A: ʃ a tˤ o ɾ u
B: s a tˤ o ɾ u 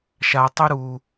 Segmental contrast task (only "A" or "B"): A